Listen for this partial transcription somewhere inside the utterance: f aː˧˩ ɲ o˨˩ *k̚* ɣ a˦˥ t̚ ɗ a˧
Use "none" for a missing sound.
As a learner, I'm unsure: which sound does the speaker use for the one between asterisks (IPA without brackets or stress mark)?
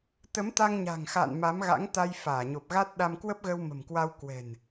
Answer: p̚